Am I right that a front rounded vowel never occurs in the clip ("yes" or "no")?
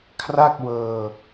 yes